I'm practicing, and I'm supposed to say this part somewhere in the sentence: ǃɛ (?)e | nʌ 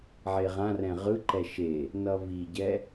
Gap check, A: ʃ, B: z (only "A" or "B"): A